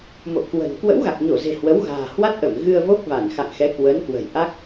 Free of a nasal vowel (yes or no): yes